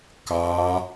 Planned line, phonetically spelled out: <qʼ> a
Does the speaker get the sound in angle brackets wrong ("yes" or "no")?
yes